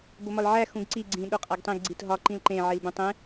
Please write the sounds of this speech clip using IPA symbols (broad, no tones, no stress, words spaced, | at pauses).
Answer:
bomɒlʕæ xũɡǀi ɡ͡ǀĩ ɗoqʼæɡtˤĩɡ ɡ͡ǀitɦɒ ǃĩlǃẽ ʕilbũtˤẽ